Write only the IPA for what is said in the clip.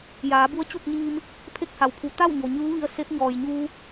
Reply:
j aː˩˧ b u˧˥ ə̯ t͡ɕ u˥˨ k̚ ɲ iː˧ m | pʰ e˥˨ k̚ h a˩ w pʰ u˩˧ t̪ a˥˨ w ɲ o˩ ɲ ɯː˧˥ ʋ i˧ ə̯ s e˧˥ p̚ ɲ ɔː˩ j ɲ uː˧

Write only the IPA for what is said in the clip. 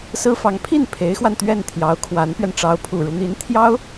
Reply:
s ɹ̩˥ f ɑ˧˥ ŋ pʰ i˥˩ n pʰ e˧˥ ɪ̯ x w a˧ n t̪ ɥ ɛ˥˩ n t̪ʰ j ɑ˧˥ ʊ̯ kʰ w a˧˥ n p ɥ ɛ˧ n ʈ͡ʂ ɑ˧˥ ʊ̯ pʰ u˨˩ ɻ u˦ n̪ i˧˥ n t̪ʰ j ɑ˥ ʊ̯

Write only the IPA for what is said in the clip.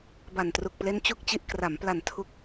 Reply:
b a˨˩ n t r u˨˩ k̚ p l e˦˥ n t͡ɕ u˥˩ k̚ t͡ɕ i˦˥ ʔ k r a˩˦ m p l a˨˩ n tʰ u˦˥ k̚

